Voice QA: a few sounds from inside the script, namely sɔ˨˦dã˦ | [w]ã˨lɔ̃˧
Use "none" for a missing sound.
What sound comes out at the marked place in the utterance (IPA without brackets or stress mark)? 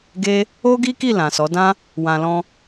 w